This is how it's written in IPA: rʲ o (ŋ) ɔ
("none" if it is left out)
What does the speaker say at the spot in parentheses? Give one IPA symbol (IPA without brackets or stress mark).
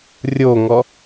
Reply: ŋ